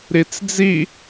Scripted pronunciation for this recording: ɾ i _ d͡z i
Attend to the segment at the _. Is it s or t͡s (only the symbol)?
t͡s